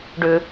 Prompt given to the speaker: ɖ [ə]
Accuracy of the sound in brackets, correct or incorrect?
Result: incorrect